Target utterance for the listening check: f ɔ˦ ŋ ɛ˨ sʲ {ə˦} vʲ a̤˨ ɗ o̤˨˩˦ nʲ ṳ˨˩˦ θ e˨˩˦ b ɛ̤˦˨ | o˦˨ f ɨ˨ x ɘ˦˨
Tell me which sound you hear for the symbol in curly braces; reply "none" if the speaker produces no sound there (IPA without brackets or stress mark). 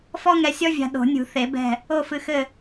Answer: ɔ˦